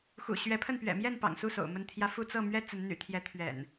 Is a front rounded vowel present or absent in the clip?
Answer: present